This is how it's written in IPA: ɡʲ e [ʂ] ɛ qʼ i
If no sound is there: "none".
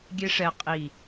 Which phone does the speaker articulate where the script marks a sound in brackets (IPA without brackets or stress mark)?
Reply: ʂ